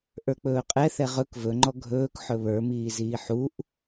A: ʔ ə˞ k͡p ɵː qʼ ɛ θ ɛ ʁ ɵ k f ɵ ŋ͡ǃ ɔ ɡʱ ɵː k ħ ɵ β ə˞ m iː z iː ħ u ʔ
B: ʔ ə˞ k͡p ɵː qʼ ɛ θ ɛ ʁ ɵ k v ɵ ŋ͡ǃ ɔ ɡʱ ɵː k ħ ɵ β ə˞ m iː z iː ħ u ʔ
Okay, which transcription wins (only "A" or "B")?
B